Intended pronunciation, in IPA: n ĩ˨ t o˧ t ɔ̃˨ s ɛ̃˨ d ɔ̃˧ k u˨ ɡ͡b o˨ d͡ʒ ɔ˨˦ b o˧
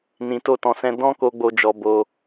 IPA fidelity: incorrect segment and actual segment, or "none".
u˨ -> o˨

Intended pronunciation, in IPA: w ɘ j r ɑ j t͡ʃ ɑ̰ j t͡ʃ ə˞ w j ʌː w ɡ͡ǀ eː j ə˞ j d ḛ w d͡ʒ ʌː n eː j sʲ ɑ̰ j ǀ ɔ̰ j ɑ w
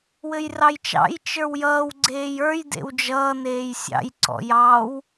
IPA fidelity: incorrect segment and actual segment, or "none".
none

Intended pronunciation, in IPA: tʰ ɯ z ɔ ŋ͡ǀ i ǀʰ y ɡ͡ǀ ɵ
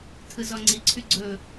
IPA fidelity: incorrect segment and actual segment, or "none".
none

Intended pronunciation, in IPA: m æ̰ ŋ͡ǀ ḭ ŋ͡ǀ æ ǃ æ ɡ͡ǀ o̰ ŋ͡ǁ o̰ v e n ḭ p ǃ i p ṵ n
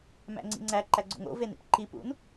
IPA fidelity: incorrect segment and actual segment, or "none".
ŋ͡ǁ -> ŋ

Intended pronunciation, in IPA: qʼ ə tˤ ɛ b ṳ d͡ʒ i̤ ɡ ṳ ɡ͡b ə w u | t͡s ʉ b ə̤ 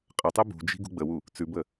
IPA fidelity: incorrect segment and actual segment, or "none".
ə̤ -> ə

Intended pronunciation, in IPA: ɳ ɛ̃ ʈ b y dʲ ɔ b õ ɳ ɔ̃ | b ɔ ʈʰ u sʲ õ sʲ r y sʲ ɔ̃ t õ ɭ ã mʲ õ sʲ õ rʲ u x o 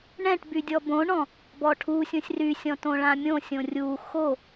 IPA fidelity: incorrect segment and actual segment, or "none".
none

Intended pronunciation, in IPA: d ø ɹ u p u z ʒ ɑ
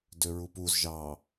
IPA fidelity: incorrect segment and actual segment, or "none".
none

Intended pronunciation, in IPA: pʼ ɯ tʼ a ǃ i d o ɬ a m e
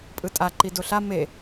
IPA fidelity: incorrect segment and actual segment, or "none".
none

